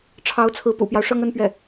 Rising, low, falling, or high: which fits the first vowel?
rising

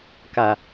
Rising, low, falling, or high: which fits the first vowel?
low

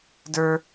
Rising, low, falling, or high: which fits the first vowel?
high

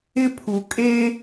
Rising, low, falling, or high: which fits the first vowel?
high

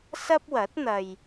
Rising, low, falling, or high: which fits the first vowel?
high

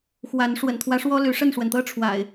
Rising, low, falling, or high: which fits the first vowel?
rising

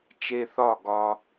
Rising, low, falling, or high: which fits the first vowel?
high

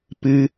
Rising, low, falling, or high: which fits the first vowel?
high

